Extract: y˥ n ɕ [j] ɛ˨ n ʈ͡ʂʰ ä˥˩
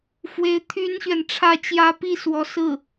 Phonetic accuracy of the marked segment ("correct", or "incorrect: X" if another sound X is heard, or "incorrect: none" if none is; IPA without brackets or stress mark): incorrect: ɥ